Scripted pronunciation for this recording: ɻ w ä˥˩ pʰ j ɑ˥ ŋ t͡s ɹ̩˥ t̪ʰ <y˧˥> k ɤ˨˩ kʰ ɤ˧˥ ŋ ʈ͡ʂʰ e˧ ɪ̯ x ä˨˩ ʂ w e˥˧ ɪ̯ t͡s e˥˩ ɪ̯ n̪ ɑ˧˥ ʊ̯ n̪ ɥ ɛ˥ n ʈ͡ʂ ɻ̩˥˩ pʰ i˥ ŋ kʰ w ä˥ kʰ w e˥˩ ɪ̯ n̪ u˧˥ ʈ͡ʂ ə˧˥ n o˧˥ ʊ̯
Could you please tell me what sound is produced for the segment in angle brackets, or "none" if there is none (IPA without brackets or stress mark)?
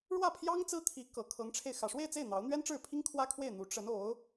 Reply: i˧˥